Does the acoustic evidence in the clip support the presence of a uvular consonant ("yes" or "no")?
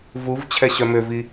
no